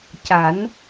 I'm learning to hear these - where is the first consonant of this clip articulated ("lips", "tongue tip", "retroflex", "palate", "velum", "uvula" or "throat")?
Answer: palate